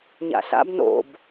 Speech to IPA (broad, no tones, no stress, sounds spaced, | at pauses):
ɲ a̰ ɬ a̰ b n o̰ b